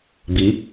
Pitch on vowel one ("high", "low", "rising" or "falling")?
rising